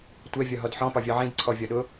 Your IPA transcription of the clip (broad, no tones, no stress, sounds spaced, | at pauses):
tʷ ɛ vʲ ɒ ɦ ɔ d ħ ɔ̃ p ɒ vʲ ɒ ʕ ĩ d ǀʰ ɔ vʲ ɒ ɗ ʊ